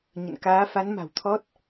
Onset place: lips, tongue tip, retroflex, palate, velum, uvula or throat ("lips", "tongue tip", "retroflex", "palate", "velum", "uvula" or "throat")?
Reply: palate